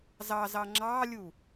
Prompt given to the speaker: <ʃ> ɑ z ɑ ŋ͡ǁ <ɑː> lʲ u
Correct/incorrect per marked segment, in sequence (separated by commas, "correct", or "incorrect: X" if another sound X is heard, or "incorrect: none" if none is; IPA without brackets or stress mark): incorrect: z, correct